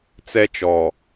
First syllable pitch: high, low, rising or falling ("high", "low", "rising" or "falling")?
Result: high